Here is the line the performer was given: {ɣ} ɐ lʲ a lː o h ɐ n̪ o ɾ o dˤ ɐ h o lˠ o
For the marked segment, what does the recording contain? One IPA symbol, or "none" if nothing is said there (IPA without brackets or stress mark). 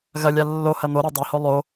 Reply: ɣ